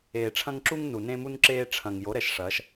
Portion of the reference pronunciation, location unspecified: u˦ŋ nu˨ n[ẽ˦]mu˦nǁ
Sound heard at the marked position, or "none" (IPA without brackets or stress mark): ẽ˦